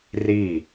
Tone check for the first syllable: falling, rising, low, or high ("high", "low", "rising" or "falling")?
falling